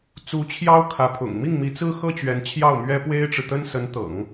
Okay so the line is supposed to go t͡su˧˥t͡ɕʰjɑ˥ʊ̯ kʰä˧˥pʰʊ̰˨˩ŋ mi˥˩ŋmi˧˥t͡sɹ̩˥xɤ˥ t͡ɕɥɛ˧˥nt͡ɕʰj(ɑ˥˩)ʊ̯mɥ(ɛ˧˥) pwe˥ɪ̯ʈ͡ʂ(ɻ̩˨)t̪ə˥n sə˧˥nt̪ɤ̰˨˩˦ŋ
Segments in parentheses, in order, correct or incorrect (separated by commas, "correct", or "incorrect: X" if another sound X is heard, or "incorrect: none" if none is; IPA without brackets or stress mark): correct, incorrect: ɛ˥, correct